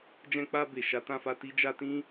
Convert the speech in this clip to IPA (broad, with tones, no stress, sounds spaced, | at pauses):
d͡ʒ ɛ̃˧ k͡p a˧ b e˨ ʃ a˨˦ t ã˧ f a˧ t i˧ d͡ʒ a˧ t ĩ˦